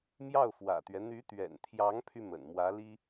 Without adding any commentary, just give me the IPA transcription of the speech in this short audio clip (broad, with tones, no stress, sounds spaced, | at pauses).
m j ɑ˥˩ ʊ̯ f w ä̰˨˩ t̪ ɥ ɛ˦ n̪ y˧˥ t̪ ɥ ɛ̰˨˩ n t̪ʰ j ɑ˧˥ ŋ pʰ y˧ m ə̰˨˩ n m w ä˧˥ l i˥